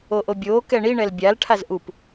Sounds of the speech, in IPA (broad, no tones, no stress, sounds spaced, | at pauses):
o ʔ o bʲ oː k ɛ ɳ i ɳ ɛ l bʲ a l ʈʰ a z ʔ u p